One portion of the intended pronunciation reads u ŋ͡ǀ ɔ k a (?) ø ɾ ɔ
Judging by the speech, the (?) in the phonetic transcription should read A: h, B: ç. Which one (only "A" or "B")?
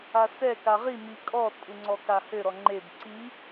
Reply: A